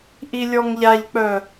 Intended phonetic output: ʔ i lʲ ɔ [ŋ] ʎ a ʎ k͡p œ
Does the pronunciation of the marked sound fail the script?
no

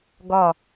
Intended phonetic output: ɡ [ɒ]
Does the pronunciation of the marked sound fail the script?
no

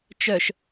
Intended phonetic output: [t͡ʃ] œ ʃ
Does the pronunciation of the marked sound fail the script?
no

